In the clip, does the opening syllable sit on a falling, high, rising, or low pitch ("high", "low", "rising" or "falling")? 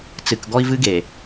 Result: low